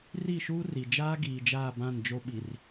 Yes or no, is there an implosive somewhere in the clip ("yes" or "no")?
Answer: yes